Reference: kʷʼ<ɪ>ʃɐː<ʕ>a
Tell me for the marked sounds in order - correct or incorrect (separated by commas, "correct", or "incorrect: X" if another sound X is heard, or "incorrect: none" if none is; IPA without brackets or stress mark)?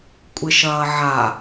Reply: correct, correct